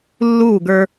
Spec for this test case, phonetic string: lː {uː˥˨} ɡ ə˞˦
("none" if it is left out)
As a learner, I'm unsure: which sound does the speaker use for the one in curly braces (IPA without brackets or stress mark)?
uː˥˨